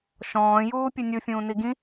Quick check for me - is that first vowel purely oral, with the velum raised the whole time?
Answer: no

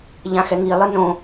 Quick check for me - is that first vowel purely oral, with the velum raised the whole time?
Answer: no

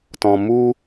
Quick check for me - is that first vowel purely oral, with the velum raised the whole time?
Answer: no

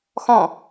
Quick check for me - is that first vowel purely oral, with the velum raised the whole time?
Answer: no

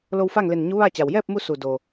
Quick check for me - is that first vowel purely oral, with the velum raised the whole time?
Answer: yes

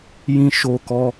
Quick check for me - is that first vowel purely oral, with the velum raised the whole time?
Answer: no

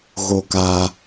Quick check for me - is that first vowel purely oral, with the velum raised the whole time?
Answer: yes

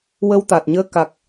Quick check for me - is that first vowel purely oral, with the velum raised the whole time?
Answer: yes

